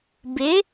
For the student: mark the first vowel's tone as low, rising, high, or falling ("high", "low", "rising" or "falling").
rising